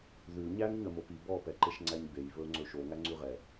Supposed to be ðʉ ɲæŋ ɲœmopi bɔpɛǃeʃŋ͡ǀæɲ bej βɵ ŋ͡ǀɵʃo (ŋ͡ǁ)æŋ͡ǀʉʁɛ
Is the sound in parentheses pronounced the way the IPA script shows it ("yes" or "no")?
no